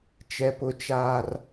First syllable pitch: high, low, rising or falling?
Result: low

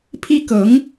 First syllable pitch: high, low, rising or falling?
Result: high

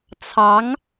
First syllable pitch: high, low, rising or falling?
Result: rising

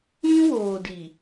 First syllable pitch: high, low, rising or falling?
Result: high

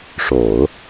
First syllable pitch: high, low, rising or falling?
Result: low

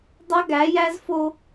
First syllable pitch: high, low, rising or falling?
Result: high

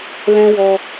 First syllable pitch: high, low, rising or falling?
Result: high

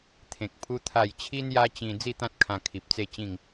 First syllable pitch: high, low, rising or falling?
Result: low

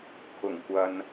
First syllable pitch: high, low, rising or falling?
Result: low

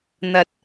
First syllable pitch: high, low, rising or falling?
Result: rising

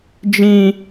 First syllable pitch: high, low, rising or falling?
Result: low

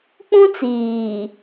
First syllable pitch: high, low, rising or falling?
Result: high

